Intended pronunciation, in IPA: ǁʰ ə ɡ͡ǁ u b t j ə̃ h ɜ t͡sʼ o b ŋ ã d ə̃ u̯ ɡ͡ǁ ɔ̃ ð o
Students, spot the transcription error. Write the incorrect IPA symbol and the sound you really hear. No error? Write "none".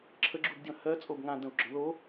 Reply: t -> d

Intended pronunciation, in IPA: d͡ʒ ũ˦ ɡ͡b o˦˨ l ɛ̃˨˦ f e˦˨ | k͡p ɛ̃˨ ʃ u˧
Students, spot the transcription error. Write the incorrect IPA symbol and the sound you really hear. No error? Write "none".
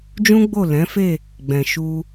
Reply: k͡p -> ɡ͡b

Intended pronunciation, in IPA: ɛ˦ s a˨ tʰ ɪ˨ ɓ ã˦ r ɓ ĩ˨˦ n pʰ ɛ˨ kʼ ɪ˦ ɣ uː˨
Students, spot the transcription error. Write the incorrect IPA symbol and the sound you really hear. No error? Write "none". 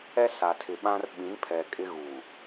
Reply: none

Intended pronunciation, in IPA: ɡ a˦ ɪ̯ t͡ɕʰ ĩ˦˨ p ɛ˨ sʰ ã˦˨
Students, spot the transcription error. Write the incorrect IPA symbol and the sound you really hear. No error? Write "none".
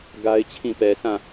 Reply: none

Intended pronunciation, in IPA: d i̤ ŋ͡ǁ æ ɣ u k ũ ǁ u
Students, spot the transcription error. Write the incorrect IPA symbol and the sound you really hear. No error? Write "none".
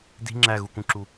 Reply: none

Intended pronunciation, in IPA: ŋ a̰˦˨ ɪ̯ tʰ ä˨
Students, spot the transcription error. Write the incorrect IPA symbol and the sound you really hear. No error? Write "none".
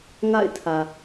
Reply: none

